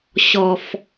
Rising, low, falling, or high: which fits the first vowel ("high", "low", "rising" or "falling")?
low